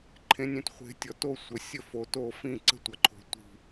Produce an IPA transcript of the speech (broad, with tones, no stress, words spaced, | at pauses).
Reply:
ǃʰẽ˨˦nʲẽ˨tχʷe̤˨˦tʲɔ˨ to˥˨ sʷə˨˦ sʲə˥˨ fo˨to˥˨ fĩ˥˨ǀə̤˥˨tʷʌ˨ǃʰo̤˨ tʷi̤˥˨